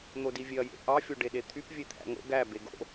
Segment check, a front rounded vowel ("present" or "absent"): present